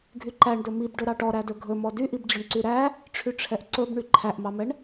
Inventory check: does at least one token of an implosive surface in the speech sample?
no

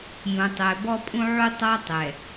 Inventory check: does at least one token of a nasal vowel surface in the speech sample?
yes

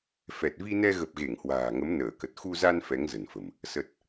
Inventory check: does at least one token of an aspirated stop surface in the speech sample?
no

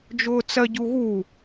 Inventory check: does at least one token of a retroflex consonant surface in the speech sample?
no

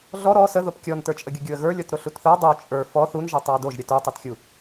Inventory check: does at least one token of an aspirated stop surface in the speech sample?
no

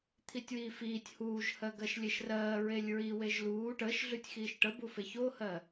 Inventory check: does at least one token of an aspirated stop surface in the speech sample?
yes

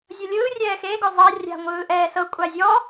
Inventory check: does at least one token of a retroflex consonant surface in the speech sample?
no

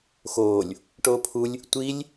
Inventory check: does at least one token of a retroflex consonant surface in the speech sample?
yes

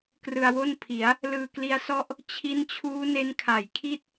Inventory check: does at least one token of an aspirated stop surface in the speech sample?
yes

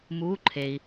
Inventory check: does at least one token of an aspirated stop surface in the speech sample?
yes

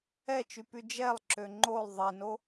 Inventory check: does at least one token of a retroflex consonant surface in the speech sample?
no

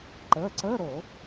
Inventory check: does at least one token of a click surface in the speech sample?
yes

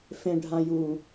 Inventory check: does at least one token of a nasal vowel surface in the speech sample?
yes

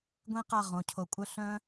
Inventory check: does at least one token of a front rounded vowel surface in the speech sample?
yes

